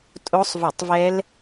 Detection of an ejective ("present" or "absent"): present